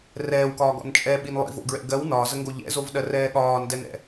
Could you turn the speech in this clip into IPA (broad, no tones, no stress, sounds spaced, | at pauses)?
r ɛː w k ɒː ɡ ɔ̰ n t͡ʃʼ ɛ ɓ i n lˠ ḭ v o̰ ɡ ɹ ɛ̰ ɡ ɜ w n ɒː z ə ŋ ɡ o ʎ ɛ̰ z o v ɗ ɜ r ɛː ɠ ɒː n d ɛ n ɛ̰